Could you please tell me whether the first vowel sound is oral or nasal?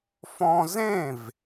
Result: nasal